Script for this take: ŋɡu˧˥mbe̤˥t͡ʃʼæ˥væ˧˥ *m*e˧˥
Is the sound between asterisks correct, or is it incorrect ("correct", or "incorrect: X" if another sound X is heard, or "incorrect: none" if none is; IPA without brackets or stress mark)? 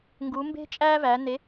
incorrect: n